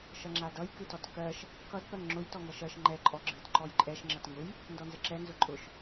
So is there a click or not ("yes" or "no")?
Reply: yes